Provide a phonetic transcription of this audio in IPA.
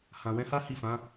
h ã˨ w ɛ̃˨˦ h a˦ h i˦˨ f ã˨˦

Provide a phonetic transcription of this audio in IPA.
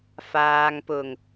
f aː˨ ŋ p ʊ˨˩ ŋ

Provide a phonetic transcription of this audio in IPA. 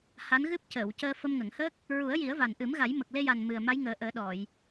h a˧˥ n ɣ ɨ˦˥ p̚ c əː˨˩˨ w c əː˧ f ə˧ m ŋ ə˨˩˨ ŋ h əː˦˥ k̚ | ɹ u˨˩˦ ə̯ j i˨˩˦ ə̯ v a˨˩ n ʔ ɨ˨˩˦ m ɣ a˨˩˦ j m ə˨˩ k̚ l e˧ j a˨˩ n m ɨ˨˩ ə̯ m a˧˥ j ŋ əː˨˩˦ ʔ əː˨˩˦ ɗ ɔ˨˩˨ j

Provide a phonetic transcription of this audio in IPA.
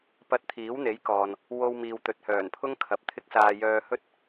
p ɐ˧ t̚ t̪ʰ iː˨˥ w n̪ e˨˥ j k ɔː˨ n | w o˧ w m iː˨ w t̪ ɵ˨ t̚ h œː˨˩ n pʰ ʊ˥ ŋ kʰ ɐ˨ p̚ t̪ʰ ɪ˥ k̚ s aː˧ j œː˧ h ɵ˥ t̚

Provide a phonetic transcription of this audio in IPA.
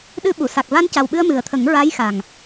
ɗ ɨ˧ ɓ u˨˩˨ s a˨˩ k̚ v a˧ n c a˨˩ w ɓ ɨ˧ ə̯ m ɨ˨˩ ə̯ t̪ʰ ə˨˩˦ ŋ ɹ a˧˥ j x a˨˩ ŋ

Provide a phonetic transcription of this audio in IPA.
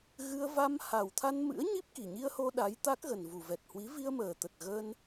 ɣ ɨ˧ ə̯ v a˧ m h a˨˩ w t̪ʰ a˧ n m ɨ̰˧˥ ə̯ ɲ i˦˥ p̚ k i˨˩ ɲ i˧ ə̯ h o˧ ɗ a˨˦ j t̪ a˦˥ k̚ ɣ ə˨˩ n v u˨˩ v ɛ˨˩ t̚ h w i˨˦ v i˧ ə̯ m əː˨˩ t̪ ə˨˩ t̚ ɣ əː˧ n

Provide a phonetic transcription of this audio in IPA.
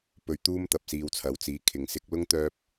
p ɵ˧ ɥ t̪ uː˥ m t̪ ɐ˨ p̚ s iː˧ w t͡sʰ ɐ˨˥ w t͡s iː˨˥ kʰ ɪ˨ ŋ s ɪ˧ k̚ l ʊ˥ ŋ t̪ œː˥ p̚

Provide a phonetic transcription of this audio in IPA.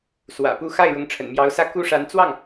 s w ä̰˨˩ p u˥˧ x a˥˩ ɪ̯ ɻ ʊ˧˥ ŋ ʈ͡ʂʰ ə̰˨˩ n m j ɑ˧˥ ʊ̯ s ä˥˩ k u˥ ʂ a˧˥ n t͡s w ɑ˥˩ ŋ

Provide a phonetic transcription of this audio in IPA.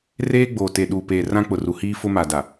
r eː˦ ɡ͡b oː˨ t e˨ ɗ uː˨ p eː˨ r ã˦ k͡p ʊ˨ r u˨ h iː˦ f ʊ˦ m a˨ d a˨

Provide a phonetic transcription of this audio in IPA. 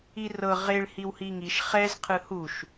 i r ɤ ʁ e ɭ h i w h i ŋ i ʃ χ ɛ z qʰ ɯ h u ʃ

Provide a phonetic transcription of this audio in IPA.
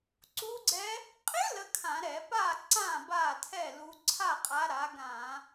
ǀ u˦˥ ɡ͡ǀ ɛ˦˥ | qʼ ɪ˦˥ l ə˦˥ kʰ ã˧˩˧ ɾ ɛ˧˩˧ p aː˥˨ ǀ ãː˥˨ b aː˥˨ tʰ ɛ˥˨ l u˨˦ ǀʰ a˥˨ qʼ a˨˦ ɾ a˨˦ ɡ ãː˧˩˧

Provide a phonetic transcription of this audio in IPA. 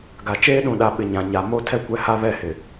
ɡ a˨ t͡ʃ eː˦ ɗ ũ˨ ɗ a˨ ɓ ɪ˨ ɲ ã˨ ɲ a˨ m o˦ tʰ ɛ˦ kʷ ɛ˦ h a˦ β ɛ˦˨ h ɪ˨

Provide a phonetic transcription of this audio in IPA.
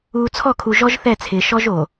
uː˨ t͡sʰ ɔ˦˨ kʰ u˨ ʒ ɔ˦ ʒ θ ɛ˦˨ t͡sʰ ɪː˨ ʃ ɔ˦ ʒ o˨

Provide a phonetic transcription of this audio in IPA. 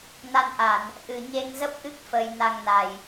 n a˧ n ʔ a˧˩˨ n | ʔ ɨ˨˩ ɲ e˧ ŋ z ə˦˥ p̚ ʔ ɨ˦˥ k̚ f ə˧ j n a˧ ŋ n a˨˩ j

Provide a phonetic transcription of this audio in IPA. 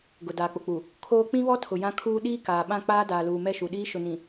ɡ ʊ˨ d aː˨ k͡p ʊ˨ k͡p u˨ | kʰ oː˦ k͡p ĩ˦ β ɔ˦ tʰ ʊ˨ j ã˦ kʰ uː˦ ɗ iː˦ k aː˨ ɓ ã˦˨ k͡p aː˦ d aː˨ l uː˨ m ɛ˦˨ ʃ u˨ ɗ iː˦ ʃ ʊ˨ n ĩ˨

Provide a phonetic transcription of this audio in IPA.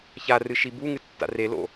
ç a r ɨ ʃ i b u ŋ ɨ tː a̰ r e l o̰

